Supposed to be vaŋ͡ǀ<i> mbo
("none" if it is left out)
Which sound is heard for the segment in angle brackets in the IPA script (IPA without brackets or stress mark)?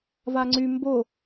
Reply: y